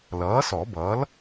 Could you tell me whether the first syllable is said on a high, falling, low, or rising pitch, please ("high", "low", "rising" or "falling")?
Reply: rising